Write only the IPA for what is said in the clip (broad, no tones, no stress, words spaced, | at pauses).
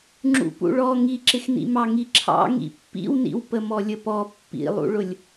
ŋ͡ǁṵpṵɭɔ ŋiǁɪxnḭmɑ ŋiǁʰɑ̰ ŋḭpːḭwnḭw pəmɔlʲəpɔ pːḭlˠṵɭʊlʲ